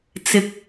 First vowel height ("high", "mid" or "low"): high